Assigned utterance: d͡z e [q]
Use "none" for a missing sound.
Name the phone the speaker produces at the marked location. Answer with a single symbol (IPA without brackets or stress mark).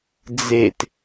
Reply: t